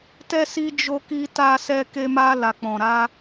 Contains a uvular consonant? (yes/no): no